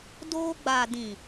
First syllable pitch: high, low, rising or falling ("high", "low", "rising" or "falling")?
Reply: high